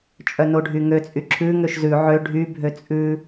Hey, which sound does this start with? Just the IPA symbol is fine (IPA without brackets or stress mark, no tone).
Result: t͡ʃʼ